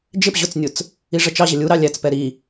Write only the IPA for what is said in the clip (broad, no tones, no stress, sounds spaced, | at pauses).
d͡ʒ ɪ p ʑ ʊ t͡s nʲ ʊ t͡s | i ʐ ə t͡ʃ ɑ ʑ ə lʲ u ɾ ɑ lʲ æ t͡s p ɛ ɾ i